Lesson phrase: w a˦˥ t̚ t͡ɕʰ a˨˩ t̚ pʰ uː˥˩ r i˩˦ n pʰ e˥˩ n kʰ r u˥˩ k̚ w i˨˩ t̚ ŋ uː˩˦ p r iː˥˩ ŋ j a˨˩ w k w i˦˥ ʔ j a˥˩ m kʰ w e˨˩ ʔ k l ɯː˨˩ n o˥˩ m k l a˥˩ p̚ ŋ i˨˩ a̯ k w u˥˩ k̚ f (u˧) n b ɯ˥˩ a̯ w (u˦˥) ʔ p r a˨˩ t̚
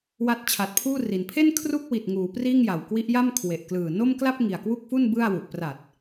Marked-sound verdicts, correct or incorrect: incorrect: u˥˩, incorrect: u˨˩

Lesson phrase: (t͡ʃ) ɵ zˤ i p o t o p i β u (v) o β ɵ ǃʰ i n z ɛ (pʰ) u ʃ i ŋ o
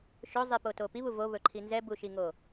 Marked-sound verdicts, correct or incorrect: incorrect: ʃ, correct, incorrect: b

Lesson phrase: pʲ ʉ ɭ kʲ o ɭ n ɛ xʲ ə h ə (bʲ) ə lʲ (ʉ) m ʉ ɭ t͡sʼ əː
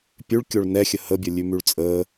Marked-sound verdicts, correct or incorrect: correct, correct

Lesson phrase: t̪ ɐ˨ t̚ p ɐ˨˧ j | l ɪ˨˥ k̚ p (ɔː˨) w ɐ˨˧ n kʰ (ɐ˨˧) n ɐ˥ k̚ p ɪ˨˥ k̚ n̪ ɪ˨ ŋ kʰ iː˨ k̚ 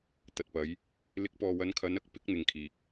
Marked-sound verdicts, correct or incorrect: correct, correct

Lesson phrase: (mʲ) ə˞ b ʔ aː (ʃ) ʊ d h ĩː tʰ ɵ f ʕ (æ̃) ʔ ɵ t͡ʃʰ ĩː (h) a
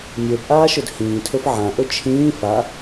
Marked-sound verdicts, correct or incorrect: correct, correct, incorrect: ã, incorrect: f

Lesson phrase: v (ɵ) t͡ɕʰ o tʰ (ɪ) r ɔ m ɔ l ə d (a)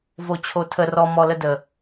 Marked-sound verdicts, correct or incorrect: incorrect: o, incorrect: ə, incorrect: ə

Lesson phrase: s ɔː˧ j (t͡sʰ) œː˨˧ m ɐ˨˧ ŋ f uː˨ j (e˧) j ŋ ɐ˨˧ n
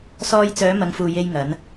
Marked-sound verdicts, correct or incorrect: incorrect: t͡s, correct

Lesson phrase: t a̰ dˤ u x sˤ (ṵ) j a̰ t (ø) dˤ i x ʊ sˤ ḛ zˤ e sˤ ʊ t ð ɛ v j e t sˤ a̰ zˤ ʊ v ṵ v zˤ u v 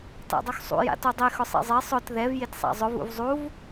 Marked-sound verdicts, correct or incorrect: correct, incorrect: u

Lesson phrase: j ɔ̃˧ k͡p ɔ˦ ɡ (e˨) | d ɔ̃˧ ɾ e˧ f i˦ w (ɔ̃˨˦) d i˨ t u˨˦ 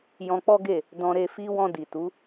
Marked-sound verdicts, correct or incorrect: incorrect: e˦˨, incorrect: ɔ̃˧

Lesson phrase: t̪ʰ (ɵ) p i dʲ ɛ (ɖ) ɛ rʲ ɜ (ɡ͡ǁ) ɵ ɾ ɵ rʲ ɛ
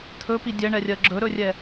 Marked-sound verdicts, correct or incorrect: correct, incorrect: ɳ, correct

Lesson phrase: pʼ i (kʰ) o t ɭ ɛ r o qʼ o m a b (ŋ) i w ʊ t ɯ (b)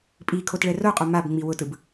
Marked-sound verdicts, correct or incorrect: correct, incorrect: ŋ͡m, correct

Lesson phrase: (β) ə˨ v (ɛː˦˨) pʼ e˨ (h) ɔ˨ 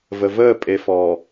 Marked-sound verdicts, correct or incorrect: incorrect: v, incorrect: əː˦˨, incorrect: f

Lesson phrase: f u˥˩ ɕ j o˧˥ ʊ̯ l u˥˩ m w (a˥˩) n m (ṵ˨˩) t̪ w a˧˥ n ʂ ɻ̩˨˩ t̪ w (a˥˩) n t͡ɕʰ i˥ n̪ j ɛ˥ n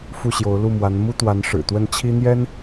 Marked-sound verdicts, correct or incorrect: incorrect: a˧˥, incorrect: u˥, incorrect: ə˥˩

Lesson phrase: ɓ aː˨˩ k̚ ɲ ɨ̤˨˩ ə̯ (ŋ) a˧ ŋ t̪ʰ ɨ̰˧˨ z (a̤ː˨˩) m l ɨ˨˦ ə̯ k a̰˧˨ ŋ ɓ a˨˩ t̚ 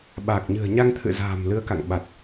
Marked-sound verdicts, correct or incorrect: incorrect: ɲ, correct

